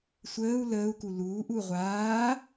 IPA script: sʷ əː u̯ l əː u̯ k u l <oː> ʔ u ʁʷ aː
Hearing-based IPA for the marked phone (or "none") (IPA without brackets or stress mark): uː